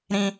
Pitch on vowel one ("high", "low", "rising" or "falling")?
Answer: high